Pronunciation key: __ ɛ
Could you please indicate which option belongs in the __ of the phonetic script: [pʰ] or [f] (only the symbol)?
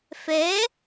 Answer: f